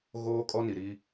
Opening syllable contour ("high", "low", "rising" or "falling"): high